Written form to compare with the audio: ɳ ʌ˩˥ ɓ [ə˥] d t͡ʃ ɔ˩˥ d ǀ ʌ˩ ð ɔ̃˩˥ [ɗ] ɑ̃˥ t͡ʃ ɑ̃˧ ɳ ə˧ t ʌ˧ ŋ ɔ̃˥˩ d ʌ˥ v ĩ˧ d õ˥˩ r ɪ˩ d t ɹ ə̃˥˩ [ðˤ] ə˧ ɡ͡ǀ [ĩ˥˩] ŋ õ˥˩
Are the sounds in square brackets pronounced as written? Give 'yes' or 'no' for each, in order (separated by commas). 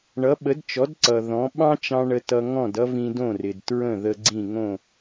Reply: no, no, no, yes